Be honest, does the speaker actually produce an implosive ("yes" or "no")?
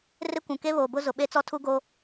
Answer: yes